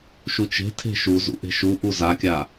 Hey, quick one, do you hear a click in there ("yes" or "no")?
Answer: no